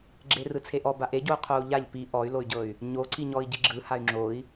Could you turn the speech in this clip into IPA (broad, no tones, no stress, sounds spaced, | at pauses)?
ɡ͡ǁ e r ɯ t͡sʰ e ʔ ɔ b a ʔ e ɟ o u̯ qʰ o u̯ ʎ a ʎ p i ʔ ɔ y̯ l o y̯ ɟ ɤ y̯ | ɲ o ǀ i ɲ ɔ i̯ ɟ i ɡ͡ǁ ɯ h a y̯ ŋ͡ǁ o i̯